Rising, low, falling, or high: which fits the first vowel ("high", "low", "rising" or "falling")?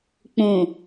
low